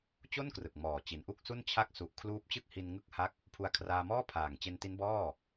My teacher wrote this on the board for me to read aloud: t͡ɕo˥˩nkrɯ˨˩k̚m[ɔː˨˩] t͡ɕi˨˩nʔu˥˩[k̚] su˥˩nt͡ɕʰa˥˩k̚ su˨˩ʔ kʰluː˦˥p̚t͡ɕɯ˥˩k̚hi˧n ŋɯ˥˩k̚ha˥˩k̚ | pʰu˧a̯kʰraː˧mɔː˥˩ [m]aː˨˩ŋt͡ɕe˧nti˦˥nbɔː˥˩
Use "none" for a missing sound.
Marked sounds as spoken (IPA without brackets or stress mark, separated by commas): ɔː˨˩, k̚, pʰ